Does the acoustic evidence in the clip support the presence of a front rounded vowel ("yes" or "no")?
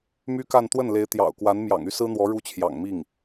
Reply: yes